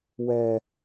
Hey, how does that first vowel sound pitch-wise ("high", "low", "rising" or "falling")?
high